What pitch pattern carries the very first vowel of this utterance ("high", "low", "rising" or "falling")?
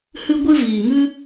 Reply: high